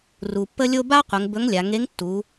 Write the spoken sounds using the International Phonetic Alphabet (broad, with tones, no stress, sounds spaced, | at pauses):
r u˩ pː ə˧ lʲ o˧ b a˥ qʷ ə˩˧ ŋ b ɵ˧˥ ŋ lʲ a˩˧ ŋ e˧˥ ŋ tː u˩˧